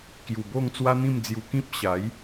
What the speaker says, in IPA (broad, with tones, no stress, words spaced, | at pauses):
kju˨˩bo˥˧ŋ t͡swa˦n̪ĩ˥˧md͡zju˧ kĩ˦p̚ɕa˨˦j